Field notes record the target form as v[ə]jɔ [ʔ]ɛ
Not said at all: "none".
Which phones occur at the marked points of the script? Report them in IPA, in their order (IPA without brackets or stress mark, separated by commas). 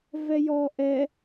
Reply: ɛ, ʔ